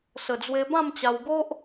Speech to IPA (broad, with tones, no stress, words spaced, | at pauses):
sə˨˩d͡zwe˧ bã˥˧mt͡ɕa˧wɡo˦ʔ